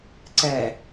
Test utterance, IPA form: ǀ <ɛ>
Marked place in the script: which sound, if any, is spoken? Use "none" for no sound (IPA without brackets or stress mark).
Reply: ɛ